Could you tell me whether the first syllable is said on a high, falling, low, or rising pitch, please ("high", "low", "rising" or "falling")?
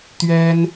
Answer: high